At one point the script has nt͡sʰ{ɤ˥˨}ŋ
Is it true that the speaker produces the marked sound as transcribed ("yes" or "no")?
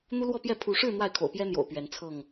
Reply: yes